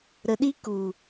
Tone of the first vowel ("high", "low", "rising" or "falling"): low